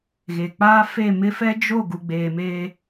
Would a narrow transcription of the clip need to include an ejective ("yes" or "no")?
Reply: no